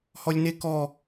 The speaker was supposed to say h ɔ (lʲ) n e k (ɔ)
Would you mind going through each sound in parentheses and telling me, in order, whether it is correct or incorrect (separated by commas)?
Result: correct, correct